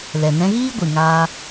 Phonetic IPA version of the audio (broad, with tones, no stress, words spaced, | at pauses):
lɛ˨nɛ̃˧ɣiː˦ ɡʷɨ˨ŋaː˧